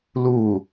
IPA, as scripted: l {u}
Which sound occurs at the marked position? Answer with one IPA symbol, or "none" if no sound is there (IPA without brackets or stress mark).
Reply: u